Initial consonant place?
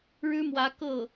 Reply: retroflex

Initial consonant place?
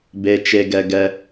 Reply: labial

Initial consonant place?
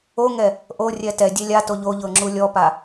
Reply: velar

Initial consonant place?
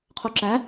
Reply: uvular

